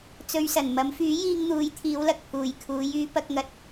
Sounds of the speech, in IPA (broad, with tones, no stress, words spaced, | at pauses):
t͡sɵ˨ɥsɐ˨˩n mɐ˨˧mfyː˨˥jiː˧ŋ n̪uː˨˧jt̪ʰiː˨˧wlɐ˨k̚ pʰuː˨jkʰuː˨˧j yː˧pɐ˧k̚ŋɐ˨˥t̚